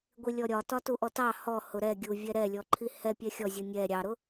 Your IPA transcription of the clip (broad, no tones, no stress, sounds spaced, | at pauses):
ɡʷ i lʲ ɔ ɾʲ ɒ t ɒ t u ʔ ɔ t ɑ h ɔ h ʊ ɾ ɛ ɡʲ u vʲ ɛ ɾ ɛ lʲ ɔ ǃʰ i h ɛ pʲ ɛ xʲ ɔ zʲ u nʲ ɛ ɾʲ ɑ ɾ ʊ